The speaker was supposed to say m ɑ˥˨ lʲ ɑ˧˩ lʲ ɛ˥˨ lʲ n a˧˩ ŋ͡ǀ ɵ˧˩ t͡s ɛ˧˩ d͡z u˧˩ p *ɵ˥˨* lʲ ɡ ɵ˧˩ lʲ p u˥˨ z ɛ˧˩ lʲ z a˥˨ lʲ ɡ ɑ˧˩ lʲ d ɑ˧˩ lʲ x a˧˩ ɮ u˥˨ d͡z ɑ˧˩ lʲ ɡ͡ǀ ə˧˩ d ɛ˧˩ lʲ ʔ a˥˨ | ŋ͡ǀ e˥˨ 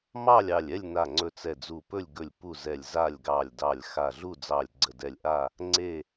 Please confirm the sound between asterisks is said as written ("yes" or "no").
yes